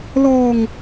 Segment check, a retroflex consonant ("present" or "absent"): absent